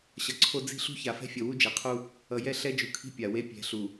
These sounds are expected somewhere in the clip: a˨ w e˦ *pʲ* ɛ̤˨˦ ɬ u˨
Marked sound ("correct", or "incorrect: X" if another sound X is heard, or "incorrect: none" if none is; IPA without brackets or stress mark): correct